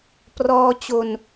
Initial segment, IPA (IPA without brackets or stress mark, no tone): p